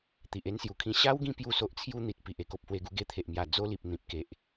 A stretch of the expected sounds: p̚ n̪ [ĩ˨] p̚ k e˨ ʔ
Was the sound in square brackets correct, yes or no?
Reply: yes